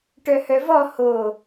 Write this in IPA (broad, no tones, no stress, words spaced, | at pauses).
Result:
ʈœhœvɔ ho